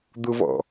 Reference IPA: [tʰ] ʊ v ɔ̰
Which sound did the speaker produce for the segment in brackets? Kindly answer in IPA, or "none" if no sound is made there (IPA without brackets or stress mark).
d̪